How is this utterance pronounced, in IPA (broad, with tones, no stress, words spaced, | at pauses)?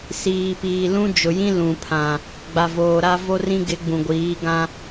siː˨piː˨ lũ˦ d͡ʒʊ˨jĩ˦ lũ˨pʰã˨ | ɡ͡ba˨voː˨ɾa˦ vo˦rĩ˦ɡɪ˨˦ ɡ͡bũ˨ɡʷiː˨˦ɡã˦